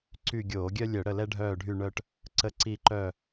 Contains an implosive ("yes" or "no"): no